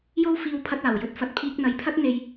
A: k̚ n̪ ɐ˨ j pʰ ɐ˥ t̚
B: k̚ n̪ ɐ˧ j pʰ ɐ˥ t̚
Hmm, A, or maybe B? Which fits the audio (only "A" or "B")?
A